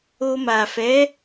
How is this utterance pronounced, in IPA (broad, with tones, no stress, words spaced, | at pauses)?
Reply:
o˧ma˨ fɛ˨˦